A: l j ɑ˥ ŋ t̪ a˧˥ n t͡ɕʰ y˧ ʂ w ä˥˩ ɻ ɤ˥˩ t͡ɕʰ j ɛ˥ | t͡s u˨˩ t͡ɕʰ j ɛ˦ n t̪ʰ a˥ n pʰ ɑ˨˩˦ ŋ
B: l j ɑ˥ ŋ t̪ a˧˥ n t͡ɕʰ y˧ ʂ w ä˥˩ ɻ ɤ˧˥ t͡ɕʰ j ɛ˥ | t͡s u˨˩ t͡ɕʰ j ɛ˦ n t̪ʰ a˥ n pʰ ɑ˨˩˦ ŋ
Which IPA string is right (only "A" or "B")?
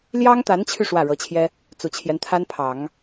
B